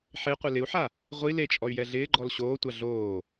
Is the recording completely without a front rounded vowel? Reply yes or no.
no